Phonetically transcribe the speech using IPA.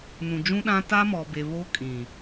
nũ˨d͡ʒũ˦ɗã˦ ta˦mɔ˨be˨ βo˦kʼĩ˨

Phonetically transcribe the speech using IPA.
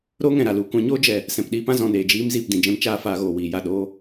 ɾoː˦ŋɛ̃˨ɾa˨ lu˨kʷã˧ɲoː˦d͡ʒɛ˨ | sɛ̃˨pɗiː˧pã˦ zɔ̃˨neː˨d͡ʒiː˧m ziː˨pdĩ˨d͡ʒɛ̃˧m t͡ʃaː˦faː˧ɣoː˨ wiː˨ja˦˨ ɗoː˧

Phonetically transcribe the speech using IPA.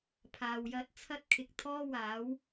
pʰaː˨wjɐ˧t̚ t͡sʰɐ˥t̚ kʰɪ˨k̚ t̪ʰɔː˥waː˨˥w

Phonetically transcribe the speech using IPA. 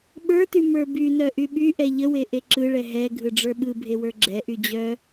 ɓə˞ty mə˞bynœ ʔyɓyʔɛ ʎəwe ʔeǁɯɭɛ ɦɛ ɡʱɯɖ͡ʐə˞ɓɯbʱe wə˞ɡ͡ǁɛʔy d͡ʑœ

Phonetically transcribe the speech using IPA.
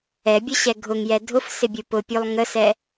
ɛbʲʊɕɛ ɡʱʊŋjɛ dʱʊfsɪbʲu pʊpʲulˠ ŋəsɛ

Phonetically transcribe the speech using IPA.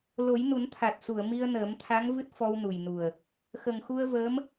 lo˨˩˦jnu˨˩˦nt̪ʰa˨˩t̚su˨˩˨ə̯ mi˧ə̯nəː˨˩˦mt̪ʰa˧˥ŋ vɨ˦˥t̚fɔ˧wnu˨˩jnu˨˩ə̯ | xə˨˩ŋxu˧ə̯vəː˧˥m

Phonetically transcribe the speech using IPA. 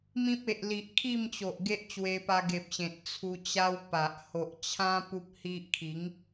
mĩ˦p̚e˨ʔ li˨ʔkʰi˥˧mt͡ɕo˨ʔ ɡe˦ʔt͡ɕwe˧pa˧ ɡe˨p̚ɕẽ˨t̚ t͡sʰu˧t͡ɕa˦wpa˨ʔ ho˨ʔt͡ɕʰã˦ pu˦p̚hi˦ʔ kʰi˨˦ŋ

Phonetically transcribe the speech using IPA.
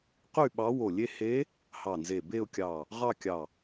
qy˥˧ɓɑ˧˥wo˧˩lʲe˥˧ he˧˥ | hɑ˧˩nze˧˩be˥˧ʊ̯kʲɑ˧˩ | ʁɑ˥˧kʲɑ˧˩

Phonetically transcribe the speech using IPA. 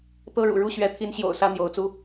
t̪ɤ˦ɻṵ˨˩ ɻu˥˨ɕɥɛ˨˦ t̪ʰi˨˦nɕjo̰˨˩ʊ̯ sä˦n̪jo˨˦ʊ̯t͡su˦

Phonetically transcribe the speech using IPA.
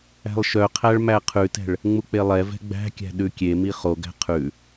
æ̤lˠʃœqʰæɭ mæqʰʉtɛ̤ɭ | ŋ͡muk͡pelˠɛvɛ̤ ɡ͡bæ̤kʲæ̤ ɗʉkʲemi χoɡæ̤ qʰʉ

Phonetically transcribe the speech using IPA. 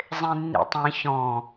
zˤẽnːḭtˤĩ çɔ̃

